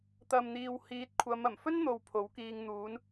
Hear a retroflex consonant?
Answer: no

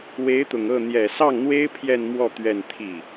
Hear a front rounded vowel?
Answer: no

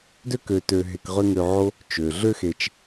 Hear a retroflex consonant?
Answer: no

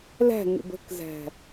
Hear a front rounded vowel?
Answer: no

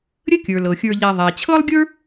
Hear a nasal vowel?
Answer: no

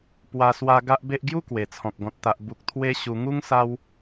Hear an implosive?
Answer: no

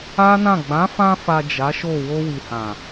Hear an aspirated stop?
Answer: no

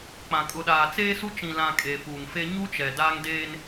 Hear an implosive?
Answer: yes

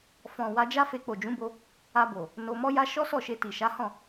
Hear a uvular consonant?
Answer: no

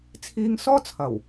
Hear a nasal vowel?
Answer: no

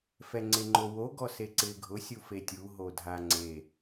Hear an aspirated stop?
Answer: no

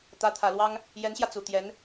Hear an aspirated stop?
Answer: yes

